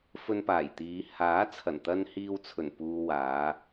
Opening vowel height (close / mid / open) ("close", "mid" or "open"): mid